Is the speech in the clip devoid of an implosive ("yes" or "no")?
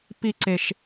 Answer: yes